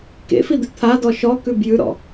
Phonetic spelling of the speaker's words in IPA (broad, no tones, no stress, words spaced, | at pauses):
kḛfid̪ʉ t̪ʰadɔ ʃɔkʉb jʉɾɔ̰